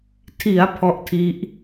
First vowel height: high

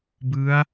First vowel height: high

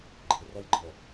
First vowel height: high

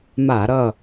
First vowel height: low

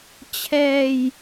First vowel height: mid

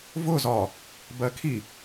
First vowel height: high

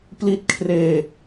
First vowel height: high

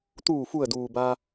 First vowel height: high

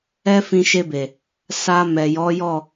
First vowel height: mid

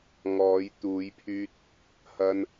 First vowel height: mid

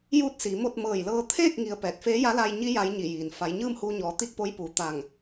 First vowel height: high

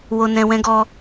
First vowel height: mid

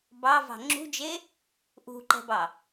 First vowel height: low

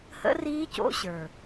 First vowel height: mid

